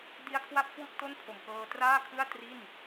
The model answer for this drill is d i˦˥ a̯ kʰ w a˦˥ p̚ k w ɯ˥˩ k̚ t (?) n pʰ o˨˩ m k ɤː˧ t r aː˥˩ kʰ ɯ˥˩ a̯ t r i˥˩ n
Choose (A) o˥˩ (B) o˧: A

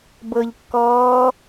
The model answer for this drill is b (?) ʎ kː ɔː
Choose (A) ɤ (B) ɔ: A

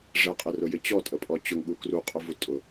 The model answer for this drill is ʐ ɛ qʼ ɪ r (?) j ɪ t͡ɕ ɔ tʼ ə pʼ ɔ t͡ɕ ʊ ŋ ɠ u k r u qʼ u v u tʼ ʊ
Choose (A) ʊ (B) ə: A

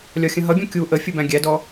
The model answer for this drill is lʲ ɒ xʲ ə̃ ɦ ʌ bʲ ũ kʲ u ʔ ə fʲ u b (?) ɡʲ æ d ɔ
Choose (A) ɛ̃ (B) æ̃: B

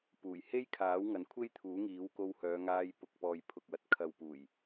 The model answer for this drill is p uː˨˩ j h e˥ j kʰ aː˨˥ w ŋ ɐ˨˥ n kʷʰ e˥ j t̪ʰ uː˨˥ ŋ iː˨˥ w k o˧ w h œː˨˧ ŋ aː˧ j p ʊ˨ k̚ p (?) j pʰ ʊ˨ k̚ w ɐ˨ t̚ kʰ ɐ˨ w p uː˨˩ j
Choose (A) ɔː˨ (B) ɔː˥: A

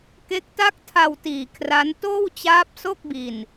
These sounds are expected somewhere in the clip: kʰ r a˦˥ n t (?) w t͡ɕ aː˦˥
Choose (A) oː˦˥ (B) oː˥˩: B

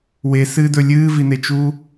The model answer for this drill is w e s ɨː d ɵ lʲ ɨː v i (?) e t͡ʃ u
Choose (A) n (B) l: A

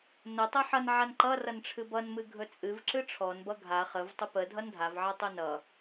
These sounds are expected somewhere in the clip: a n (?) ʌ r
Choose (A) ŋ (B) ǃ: B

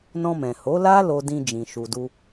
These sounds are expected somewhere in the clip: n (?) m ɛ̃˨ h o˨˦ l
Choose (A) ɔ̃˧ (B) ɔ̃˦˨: A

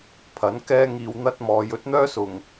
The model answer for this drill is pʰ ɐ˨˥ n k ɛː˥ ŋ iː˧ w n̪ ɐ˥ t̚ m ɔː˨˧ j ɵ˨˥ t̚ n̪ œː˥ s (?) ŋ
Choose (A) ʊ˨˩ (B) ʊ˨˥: A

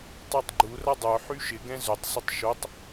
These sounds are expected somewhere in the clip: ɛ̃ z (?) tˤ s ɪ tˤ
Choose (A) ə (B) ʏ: B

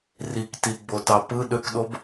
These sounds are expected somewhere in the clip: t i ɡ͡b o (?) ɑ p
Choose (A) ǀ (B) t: B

